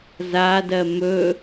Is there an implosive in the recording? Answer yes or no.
no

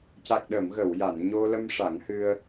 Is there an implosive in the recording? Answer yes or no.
yes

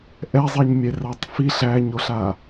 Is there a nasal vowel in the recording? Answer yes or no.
no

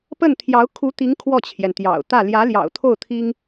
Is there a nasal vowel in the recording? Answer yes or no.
no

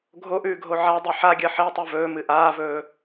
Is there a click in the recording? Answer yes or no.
no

